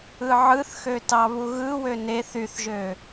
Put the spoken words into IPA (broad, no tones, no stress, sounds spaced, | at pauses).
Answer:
ɯ ʕ ɯ θ x ø t ɑ β u ɣ ɯ w ø n e θ y θ ʒ ø